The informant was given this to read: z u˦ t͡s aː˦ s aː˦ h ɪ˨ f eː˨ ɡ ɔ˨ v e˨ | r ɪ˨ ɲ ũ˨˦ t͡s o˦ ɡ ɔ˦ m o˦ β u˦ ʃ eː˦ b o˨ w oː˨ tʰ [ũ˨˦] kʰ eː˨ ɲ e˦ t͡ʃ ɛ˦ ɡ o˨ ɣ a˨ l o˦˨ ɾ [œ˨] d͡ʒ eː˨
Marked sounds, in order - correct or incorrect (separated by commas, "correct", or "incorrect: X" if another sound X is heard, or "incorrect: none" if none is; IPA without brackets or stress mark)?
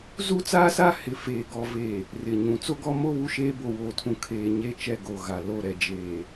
incorrect: ũ˨, incorrect: ɛ˨